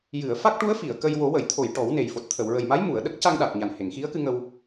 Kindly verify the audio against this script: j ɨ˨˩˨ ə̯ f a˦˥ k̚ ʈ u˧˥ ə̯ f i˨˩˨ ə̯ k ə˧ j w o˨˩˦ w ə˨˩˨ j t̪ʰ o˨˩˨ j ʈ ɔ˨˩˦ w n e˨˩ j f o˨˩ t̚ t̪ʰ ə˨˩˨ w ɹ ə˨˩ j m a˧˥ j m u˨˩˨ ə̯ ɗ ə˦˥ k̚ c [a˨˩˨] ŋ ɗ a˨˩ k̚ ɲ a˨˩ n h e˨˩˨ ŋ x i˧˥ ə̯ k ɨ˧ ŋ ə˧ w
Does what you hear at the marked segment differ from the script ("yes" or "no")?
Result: yes